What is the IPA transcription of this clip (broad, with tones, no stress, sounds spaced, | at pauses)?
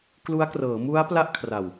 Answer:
k l u˦˥ a̯ k r ɤː˩˦ m u˦˥ a̯ p l a˥˩ ʔ kʰ r a˨˩ w